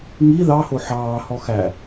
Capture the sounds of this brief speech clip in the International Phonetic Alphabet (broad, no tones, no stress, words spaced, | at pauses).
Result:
ŋi ðɑ hoħɑː hɔxæ